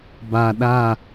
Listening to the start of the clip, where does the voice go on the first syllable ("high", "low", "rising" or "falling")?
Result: low